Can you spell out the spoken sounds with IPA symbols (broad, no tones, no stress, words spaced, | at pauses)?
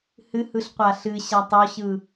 hɨhɯɬ qʷaɬɨɕatˤ ɔɕɯ